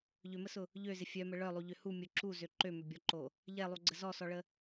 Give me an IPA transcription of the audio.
ʎ ʏ m ə s ʊ | ʎ ø z ɪ fʲ œ m ə ɭ œ lˠ u ʎ ʏ h u mʲ ʊ ǁ u z ø ǃ ø m ʏ bʲ ɔ ǃ o | ʎ ɛ lˠ u ɡ͡ǀ ə z ɔ s ɔ ɭ ə

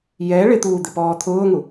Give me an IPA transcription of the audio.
j ɛ ɭ ɪ t̪ uː d̪ ɪ p ɔː t̪ʰ ʊː ŋ u

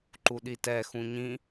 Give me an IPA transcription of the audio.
ǃ u ɗ i t ɛ x ũ ɲ ĩ

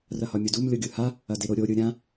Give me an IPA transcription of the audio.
r ɐ h ɒ mʲ o d u m lʲ o ɡʲ ɯ h a | ɐ d e ɾ o ɾʲ o ɾʲ ɯ ɾʲ ã

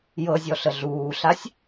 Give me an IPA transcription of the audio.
j ɤ zʲ ɔ ɬ ə ɮ uː ɬ a sʲ

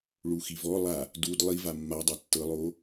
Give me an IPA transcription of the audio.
ɭ u x i v ɔ lˠ a | d u d lˠ i v a mː a dˤ ɤ tː ɤ lˠ oː

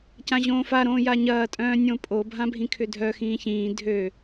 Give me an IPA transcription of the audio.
c ã ʑ õː f a ɾ õː j a ɲ ɐː tʼ œ̃ː nʲ õ pʼ o bʱ ã bʱ ĩ kʰ ʏ dʱ œ x ĩː ç ĩː dʱ ø

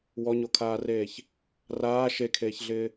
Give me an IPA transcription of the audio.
w ɔ ɲ o kʰ aː r eː ç | r aː ʃ e kʰ eː ç ɮ ɪː

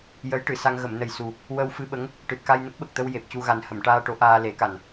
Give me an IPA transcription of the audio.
j ə˧˥ j ʈ ɨ˨˩˨ s a˧ ŋ ɣ ə˨˩˨ m n ə˨˩ j s u˨˩ | w ə˧ w f ɨ˧ ɓ ə˧˥ ŋ | ʈ ɨ˨˩ t̚ k a˧ j n ə˦˥ k̚ ɓ ə˨˩ k̚ t̪ ə˧ w j e˨˩ p̚ c u˧ ɣ a˨˩ n h ə˨˩˨ m ʈ aː˧ ʈ o˨˩˦ ʔ aː˧ l e˨˩˦ k a˨˩ n

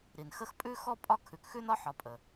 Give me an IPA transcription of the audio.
ɾ i˩ n x ə˦ x pʼ ʉ˥ x ɔ˥ pʼ ɒ˦ kʰ ʉ˨ k x ʉ˥ n ɒ˥ ħ ɒ˨ pʼ ə˩

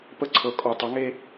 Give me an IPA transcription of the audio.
p ə˥ ǀʰ ɤ˧˥ kʼ ɔ˧ tˤ u˧˥ ŋ e˥

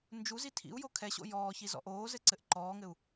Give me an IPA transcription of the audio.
n d͡ʒ u z i tʰ ḭ u̯ j o kʰ ɛ ɕ o̰ j ɔː ç i z ɔ̰ ʔ oː z ɘ ǀ ɘ ʔ ǃ ɔː ŋ ɘ u̯

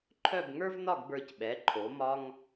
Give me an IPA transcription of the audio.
ǃʰ œ˥˧ b ŋ ə˞˥ v n ɒ˥˧ ɡ b ə˞˧ c ɓ ɛ˩˧ ǃʰ o˩˧ m ɒ˧ ŋ

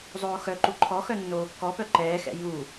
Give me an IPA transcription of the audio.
zˤ oː x œ ǃ u ǃʰ ɔ x œ nː oː kː ɔ p œ ǃ ɛː x ɛ̰ j u

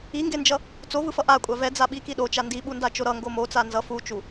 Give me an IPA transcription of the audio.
i ŋ ɡ e n d͡ʒ ʌ | t͡s o v ɯ f ʌ ʔ a kʷʼ a v ɛ d͡z a ɓ i k i ɗ o t͡ʃ a n d i ɓ u n d a t͡ʃ o ɾ ʌ ŋ ɡ o m o t͡s a n z ʌ f u t͡ʃ u

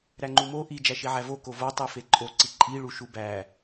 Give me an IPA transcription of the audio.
ɾ æ ŋ͡ǃ u m o ʔ i d͡ʒ æ ʃ i ʕ æ v o k o v o tˤ i f e ǃʼ o ǀ i ǃʼ i ɭ u ʃ u b æ

